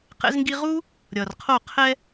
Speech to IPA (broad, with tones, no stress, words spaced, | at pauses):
qɛ̰˧zŋɡi˧ʁu˦ | ɾʲʌ˨rqʰo˦˨ qʰɛ˧